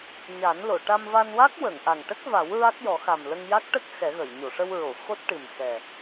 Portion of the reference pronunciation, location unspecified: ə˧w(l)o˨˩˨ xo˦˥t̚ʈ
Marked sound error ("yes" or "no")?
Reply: yes